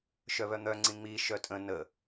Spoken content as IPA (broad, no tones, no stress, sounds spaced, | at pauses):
ʃ œ β œ n̪ œ ŋ͡ǀ ĩ ŋ͡m i ʃ œ tʼ ə̃ n ə